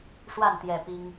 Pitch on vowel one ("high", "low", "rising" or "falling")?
falling